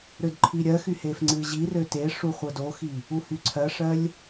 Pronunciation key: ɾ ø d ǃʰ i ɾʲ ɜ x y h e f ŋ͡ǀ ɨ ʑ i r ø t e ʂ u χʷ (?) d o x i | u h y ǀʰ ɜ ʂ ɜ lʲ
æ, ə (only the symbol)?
ə